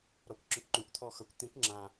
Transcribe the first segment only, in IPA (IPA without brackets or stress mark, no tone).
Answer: ɾ